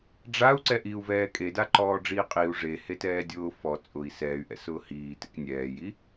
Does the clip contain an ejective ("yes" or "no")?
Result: yes